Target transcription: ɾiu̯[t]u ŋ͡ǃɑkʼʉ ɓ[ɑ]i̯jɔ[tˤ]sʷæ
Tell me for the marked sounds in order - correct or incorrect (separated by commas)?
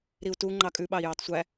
correct, correct, correct